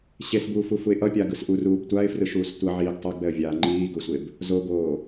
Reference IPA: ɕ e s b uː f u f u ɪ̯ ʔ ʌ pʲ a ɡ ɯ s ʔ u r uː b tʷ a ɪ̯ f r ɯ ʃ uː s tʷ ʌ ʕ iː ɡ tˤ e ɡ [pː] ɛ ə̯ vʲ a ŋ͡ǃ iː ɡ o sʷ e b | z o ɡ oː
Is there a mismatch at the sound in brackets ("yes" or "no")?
yes